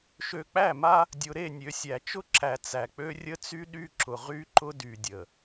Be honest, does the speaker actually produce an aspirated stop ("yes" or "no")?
no